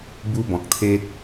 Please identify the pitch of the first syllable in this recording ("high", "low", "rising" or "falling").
high